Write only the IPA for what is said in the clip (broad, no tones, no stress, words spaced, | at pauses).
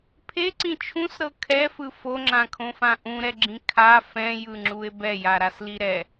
pʰeǀĩ t͡ʃʰũsɾɤ kʰɛfɯ foŋ͡ǁãkʰõfã ʔũɾɛɡ͡ǁĩ kʰa fɛ̃jɯŋ͡ǁue̯ bɛjaɾasli ɾɛ